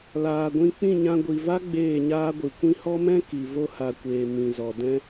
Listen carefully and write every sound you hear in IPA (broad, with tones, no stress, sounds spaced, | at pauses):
l aː˨ ɡʷ ĩ˧ k͡p ĩ˦˨ ɲ ã˧ ɡʷ i˨ v a˦ ɡ͡b eː˦˨ ɲ aː˦ ɡʷ ɨ˨ kʷ ĩ˧ h ɔ˦ m ɛ̃˦ k i˨ v o˦ h a˨ kʷ eː˨ m ĩ˨ z ɔ˨ d ɛ̃˦